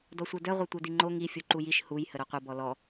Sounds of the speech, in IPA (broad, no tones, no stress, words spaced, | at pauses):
dɔsʷœdœ ʁʷœtʷœdiŋ͡ǃo ŋi fʲuǃujiʃ huj həɾoqʷə bɔlɔ